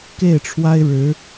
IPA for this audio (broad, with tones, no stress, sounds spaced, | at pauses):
k e˥˩ ɪ̯ ʈ͡ʂʰ w a˥ ɪ̯ ɻ ɻ̩˧˥